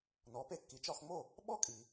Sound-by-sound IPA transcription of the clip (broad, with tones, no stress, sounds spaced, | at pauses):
n ɔ˩˥ p e˧ kː i˩˥ t͡ʃ ɒ˧ x ŋ͡m o˥˩ | ɓ ɔ˥ kʼ i˩